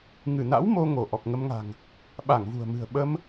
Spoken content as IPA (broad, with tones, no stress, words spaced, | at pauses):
ŋɨ˧˩na̰˧˥w mo˧ ŋo˧˩ ʔɔ˨˩k̚ŋə˧mŋa̤˨˩ŋ | ɓa˧˩ŋvṳ˨˩ə̯mɨ̤˨˩ə̯ ɓə˧m